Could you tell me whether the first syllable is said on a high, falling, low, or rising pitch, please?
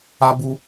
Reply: high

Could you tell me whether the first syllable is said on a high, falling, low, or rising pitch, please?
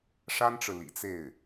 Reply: high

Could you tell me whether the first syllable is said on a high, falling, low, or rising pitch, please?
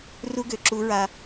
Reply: high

